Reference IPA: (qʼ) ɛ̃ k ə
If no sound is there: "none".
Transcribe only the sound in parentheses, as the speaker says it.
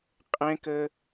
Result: qʼ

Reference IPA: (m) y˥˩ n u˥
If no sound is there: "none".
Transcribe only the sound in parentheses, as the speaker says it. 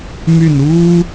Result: m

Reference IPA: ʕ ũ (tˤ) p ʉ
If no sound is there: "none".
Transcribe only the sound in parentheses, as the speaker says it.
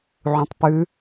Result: tˤ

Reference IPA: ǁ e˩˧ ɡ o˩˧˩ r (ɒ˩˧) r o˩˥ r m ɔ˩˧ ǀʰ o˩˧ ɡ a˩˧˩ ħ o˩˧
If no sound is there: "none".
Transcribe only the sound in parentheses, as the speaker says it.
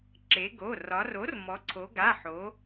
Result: ɒ˩˧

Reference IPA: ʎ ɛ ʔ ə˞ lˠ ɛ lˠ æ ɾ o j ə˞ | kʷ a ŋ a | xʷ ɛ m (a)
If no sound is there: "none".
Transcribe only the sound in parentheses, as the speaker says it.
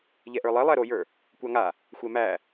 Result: æ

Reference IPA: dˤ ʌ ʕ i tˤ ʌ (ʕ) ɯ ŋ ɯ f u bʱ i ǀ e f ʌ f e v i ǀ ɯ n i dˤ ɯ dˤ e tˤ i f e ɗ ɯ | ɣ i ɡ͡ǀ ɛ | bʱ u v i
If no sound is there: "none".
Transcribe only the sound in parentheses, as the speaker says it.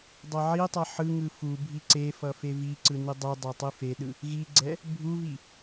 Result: ħ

